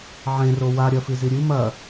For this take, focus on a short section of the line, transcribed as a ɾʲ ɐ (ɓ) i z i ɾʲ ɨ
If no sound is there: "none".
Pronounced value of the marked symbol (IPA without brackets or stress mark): f